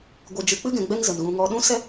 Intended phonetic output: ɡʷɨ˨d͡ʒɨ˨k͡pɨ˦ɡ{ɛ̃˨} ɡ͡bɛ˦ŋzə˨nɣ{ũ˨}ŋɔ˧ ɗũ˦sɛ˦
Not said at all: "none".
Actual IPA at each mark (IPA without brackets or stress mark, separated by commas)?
ɛ̃˨, ũ˧